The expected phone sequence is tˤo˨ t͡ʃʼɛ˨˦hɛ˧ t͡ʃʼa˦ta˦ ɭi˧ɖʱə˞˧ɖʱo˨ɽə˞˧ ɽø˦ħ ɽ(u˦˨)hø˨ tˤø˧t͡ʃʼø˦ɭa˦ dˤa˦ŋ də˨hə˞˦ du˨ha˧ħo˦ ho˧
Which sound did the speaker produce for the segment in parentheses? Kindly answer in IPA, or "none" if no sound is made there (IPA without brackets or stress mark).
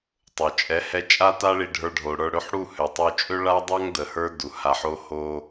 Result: u˦˨